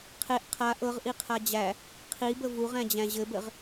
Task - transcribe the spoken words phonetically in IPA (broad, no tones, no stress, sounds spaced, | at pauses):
qʰ e ʔ qʰ a ʔ ɤ ʁ ʔ i qʰ a d͡ʑ æ | qʰ i b ə v u ʁ æ̃ d͡ʑ æ̃ ʑ ɘ b ɘ ʁ